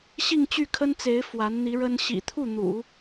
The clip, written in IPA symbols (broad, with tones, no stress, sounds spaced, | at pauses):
ɕ i˥˧ ŋ t͡ɕ y˥˩ kʰ ə˥ n t͡s e˧˥ ɪ̯ f w a˧˥ n n̪ i˧˥ ɻ ə˥ n ɕ ḭ˨˩ t̪ʰ u˥˩ n̪ ṵ˨˩˦